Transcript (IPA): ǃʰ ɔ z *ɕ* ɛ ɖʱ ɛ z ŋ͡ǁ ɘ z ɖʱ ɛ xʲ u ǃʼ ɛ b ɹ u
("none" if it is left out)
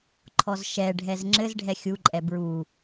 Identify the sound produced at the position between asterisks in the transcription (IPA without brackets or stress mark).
ʃ